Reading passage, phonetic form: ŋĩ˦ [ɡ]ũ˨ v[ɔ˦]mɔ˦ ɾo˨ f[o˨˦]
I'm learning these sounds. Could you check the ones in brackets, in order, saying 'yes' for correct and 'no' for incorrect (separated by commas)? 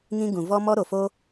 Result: yes, yes, no